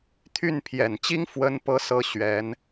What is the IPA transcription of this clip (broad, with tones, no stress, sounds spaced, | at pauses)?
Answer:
t̪ʰ y˥˩ n pʰ j ɛ˨˩ n t͡ɕ i˥ ŋ f w ə˥ n p ɤ˥ s ɤ˥ ɕ ɥ ɛ˧˥ n